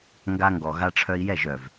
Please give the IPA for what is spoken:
ŋ ɡ a˧ ŋ ɡ ɔ˨ ɣ a˧ ʈ͡ʂʰ œ˧ i̯ j ɛ˦˨ ʒ œ˨ v

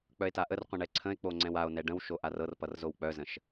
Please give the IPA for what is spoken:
k͡p œ e̯ t a ʔ ə r qʷ ə̃ ɳ ɛ ǀʰ ə̃ e̯ k͡p o ŋ͡ǀ ɛ̃ w a o̯ n ɛ ɖ ə̃ w ʃ o ʔ a r ɤ r p ʌ r z o w k͡p œ z ə̃ ʃ

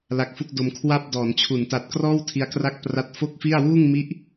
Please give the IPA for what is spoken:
l a˦˥ k̚ f u˥˩ k̚ d o˧ m kʰ w a˥˩ p̚ d ɔː˩˦ n t͡ɕʰ u˩˦ n t a˨˩ t̚ k r ɔː˥˩ w tʰ i˧ a̯ k r a˥˩ k̚ p r a˦˥ t̚ f o˥˩ k̚ f i˥˩ a̯ w uː˥˩ ŋ m i˦˥ ʔ

